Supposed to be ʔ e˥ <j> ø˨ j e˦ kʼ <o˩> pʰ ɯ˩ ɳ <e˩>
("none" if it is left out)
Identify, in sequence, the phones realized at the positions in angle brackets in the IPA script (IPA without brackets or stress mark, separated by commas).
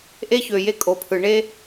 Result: ç, o˩, e˥